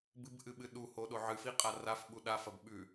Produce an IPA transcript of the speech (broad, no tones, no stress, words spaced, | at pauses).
bɨbʔɨɓɨ ɗuhoɗo ʕɨfiqʼa rafɓu ɗafɐb ɓʉ